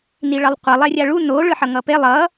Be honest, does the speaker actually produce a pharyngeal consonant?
yes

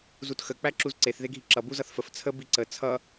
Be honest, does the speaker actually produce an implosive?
no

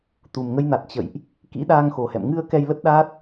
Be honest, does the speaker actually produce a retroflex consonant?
no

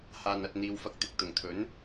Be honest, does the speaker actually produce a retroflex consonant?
no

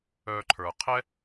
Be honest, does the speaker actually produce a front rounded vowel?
yes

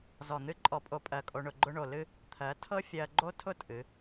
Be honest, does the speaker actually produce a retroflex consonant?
yes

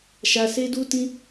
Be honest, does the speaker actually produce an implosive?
no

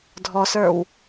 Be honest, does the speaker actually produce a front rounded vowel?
no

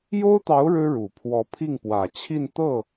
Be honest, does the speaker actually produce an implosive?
no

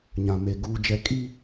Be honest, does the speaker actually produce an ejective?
yes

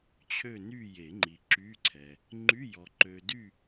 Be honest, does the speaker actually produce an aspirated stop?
yes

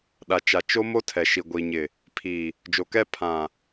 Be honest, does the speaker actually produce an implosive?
yes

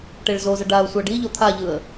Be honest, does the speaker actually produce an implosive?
no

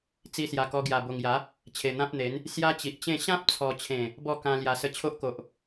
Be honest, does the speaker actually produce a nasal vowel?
yes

